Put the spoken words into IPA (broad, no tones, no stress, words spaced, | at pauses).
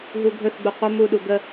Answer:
ɦuɡʱɵθɡ͡bu qʷə muɗu ɡə